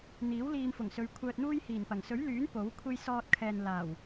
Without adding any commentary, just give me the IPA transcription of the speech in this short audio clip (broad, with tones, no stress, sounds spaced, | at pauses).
n̪ iː˨˥ w l iː˧ m f ʊ˨˩ ŋ s ɵ˨˧ ɥ kʷʰ œː˧ t̚ n̪ uː˥ j h iː˨˩ n p ɐ˨˩ ŋ s ɵ˨˥ ɥ l yː˨˥ n p o˨˥ w kʷʰ e˥ j s ɔː˧ t̚ kʰ ɛː˨ n l aː˨˩ w